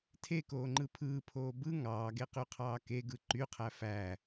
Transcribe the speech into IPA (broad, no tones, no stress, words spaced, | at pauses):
tʰekoːŋ͡ǃɯ pʰɯːpʰoː bɯ ŋɑːɡeqyqʰɑː keɡɯ ǃyqʰæ fæ